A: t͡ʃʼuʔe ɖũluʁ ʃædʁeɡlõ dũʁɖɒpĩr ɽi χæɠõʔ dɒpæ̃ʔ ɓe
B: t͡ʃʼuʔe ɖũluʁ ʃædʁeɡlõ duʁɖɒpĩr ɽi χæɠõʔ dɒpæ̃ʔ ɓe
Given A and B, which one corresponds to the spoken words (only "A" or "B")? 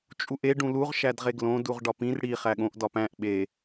B